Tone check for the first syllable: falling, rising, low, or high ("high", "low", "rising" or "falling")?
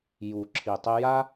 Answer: low